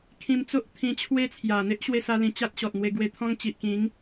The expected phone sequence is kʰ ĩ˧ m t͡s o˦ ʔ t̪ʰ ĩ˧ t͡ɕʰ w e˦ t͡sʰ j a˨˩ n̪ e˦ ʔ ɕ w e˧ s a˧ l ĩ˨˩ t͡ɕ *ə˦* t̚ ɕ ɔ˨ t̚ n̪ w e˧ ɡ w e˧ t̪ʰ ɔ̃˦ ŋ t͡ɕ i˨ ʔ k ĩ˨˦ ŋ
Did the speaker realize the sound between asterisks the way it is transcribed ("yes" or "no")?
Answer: no